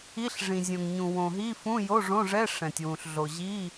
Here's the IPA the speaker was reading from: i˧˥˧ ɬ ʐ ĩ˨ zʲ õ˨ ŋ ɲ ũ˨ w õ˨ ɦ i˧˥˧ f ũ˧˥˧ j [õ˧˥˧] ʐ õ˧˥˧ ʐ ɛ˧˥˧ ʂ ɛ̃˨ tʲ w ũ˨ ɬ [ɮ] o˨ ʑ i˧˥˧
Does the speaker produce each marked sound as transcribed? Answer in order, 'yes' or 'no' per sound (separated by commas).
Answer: no, yes